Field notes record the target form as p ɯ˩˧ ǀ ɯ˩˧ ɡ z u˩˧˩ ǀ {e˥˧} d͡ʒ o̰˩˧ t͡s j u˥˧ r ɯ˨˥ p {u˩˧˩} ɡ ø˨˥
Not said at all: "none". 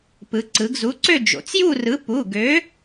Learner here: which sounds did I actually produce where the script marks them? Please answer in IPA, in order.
ø˥˧, u˩˧˩

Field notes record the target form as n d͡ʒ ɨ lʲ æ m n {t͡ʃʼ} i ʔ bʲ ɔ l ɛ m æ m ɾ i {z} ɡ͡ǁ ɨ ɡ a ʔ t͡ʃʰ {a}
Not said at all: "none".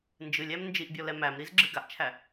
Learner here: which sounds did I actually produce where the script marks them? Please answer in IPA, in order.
d͡ʒ, z, æ

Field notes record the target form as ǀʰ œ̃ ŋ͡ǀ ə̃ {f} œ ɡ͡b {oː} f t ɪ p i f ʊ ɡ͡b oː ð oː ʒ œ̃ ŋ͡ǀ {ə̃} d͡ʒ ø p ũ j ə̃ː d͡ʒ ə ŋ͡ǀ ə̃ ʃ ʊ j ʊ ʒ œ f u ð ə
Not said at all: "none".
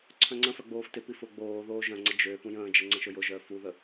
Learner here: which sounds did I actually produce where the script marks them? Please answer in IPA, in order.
f, oː, ə

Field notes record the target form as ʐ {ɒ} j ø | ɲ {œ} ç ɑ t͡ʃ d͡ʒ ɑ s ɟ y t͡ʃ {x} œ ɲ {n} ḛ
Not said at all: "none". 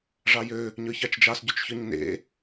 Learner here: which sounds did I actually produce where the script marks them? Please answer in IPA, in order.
ɑ, œ, ç, n

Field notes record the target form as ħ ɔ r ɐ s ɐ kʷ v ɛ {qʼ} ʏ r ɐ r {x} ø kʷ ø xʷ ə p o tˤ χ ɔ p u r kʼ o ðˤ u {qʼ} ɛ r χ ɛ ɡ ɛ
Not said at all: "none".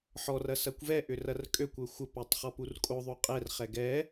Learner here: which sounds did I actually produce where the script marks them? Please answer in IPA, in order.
ʔ, kʼ, qʼ

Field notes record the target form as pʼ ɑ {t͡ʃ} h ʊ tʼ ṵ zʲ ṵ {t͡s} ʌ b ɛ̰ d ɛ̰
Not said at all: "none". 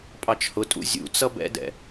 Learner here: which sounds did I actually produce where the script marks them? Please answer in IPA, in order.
t͡ʃ, t͡s

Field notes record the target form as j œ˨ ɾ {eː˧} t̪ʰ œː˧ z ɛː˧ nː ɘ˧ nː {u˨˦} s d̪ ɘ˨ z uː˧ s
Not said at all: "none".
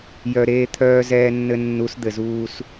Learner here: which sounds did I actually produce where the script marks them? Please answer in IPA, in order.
eː˧, u˨˦

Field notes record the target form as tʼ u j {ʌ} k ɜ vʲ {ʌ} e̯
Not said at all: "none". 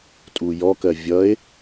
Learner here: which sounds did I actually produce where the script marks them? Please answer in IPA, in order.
ɔ, ʌ

